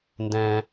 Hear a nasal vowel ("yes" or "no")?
yes